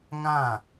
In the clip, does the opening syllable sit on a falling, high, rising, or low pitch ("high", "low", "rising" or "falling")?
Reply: falling